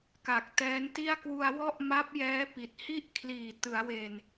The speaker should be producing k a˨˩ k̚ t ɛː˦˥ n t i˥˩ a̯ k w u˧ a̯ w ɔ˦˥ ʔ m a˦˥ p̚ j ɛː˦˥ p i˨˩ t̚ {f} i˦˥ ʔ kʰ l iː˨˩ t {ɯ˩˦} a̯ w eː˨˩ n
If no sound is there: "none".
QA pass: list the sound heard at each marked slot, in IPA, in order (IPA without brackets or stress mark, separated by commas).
h, ɯ˩˦